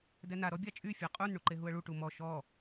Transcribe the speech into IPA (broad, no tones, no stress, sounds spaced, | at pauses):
d ɛ n a ɾ ɔ bʲ a t͡ʃʼ y fʲ a qʼ u n ɳ u ǃ e ɦ u ə̯ ɭ u ʈ u m ɔ ʃ ɔ